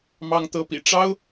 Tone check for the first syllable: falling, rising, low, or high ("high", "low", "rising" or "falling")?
high